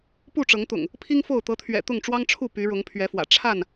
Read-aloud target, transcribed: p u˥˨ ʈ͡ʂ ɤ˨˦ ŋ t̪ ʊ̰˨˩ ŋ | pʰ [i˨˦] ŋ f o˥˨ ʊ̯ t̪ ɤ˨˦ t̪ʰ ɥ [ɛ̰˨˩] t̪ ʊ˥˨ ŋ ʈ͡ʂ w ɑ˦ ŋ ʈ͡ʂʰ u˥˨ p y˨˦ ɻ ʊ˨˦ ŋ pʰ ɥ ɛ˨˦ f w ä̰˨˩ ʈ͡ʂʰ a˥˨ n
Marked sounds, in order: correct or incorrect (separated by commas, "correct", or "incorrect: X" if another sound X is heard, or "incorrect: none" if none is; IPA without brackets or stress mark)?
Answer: incorrect: i˦, correct